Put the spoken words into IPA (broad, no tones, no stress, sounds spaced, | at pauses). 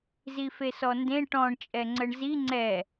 z i f e s ɔ n d ẽ ʈ ɔ̃ ɳ t͡ʃʼ ɛ ŋ͡ǀ ə ɳ z i ŋ͡ǀ ɛ